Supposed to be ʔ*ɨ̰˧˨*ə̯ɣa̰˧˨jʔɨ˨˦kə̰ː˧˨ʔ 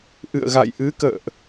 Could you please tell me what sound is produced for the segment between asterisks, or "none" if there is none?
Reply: ɨ̰˧˨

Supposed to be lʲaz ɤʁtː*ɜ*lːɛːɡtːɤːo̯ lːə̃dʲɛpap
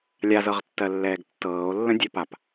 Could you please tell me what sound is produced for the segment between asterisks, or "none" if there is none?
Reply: ɜ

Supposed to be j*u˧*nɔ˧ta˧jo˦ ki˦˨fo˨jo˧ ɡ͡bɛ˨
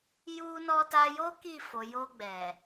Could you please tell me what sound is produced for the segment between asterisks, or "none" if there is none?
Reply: u˧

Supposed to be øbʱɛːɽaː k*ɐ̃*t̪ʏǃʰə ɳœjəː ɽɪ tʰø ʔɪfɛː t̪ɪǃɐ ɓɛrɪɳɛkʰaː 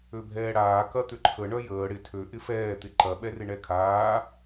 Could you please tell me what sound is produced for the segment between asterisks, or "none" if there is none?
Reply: ɐ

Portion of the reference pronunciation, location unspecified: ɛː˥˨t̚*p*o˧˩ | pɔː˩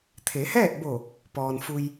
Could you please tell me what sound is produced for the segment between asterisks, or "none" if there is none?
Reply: b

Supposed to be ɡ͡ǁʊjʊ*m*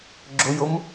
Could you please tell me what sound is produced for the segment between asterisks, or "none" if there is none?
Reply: m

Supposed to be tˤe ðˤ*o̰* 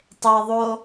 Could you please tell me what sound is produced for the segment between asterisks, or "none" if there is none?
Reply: o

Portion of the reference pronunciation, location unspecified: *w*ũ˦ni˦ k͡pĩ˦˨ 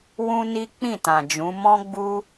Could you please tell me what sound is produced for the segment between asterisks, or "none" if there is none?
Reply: w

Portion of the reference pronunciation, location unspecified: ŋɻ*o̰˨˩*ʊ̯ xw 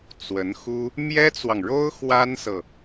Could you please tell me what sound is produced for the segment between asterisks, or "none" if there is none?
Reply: o˥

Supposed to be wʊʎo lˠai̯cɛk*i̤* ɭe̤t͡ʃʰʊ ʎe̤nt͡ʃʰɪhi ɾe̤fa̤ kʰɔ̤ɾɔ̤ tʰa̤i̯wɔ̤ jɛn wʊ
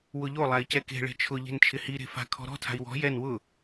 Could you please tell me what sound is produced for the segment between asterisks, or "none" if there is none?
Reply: e̤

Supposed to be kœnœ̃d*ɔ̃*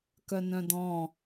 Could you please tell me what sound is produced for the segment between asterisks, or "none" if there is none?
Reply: ɔ̃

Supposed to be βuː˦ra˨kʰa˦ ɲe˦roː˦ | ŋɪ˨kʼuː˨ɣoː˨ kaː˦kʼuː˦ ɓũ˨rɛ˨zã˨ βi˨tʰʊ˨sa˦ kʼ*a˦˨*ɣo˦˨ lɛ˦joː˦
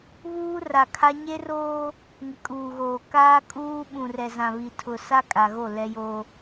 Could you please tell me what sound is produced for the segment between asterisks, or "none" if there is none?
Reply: a˨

